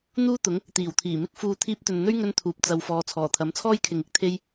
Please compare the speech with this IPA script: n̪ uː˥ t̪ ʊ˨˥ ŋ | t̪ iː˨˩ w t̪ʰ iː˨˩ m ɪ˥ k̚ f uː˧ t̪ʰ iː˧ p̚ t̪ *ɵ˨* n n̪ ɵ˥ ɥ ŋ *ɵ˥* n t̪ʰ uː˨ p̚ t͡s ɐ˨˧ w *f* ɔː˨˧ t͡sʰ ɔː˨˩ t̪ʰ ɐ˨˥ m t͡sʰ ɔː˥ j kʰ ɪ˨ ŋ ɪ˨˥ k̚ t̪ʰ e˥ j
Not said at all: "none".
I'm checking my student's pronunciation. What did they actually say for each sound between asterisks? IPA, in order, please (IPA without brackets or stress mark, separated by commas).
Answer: ɵ˨, ɵ˥, f